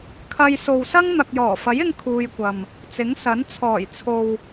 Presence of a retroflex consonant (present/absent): absent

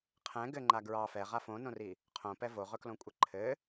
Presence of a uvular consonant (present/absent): present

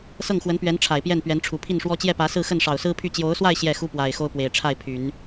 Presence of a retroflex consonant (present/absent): present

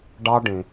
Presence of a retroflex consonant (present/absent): present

